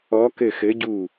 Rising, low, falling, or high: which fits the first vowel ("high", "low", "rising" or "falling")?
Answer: rising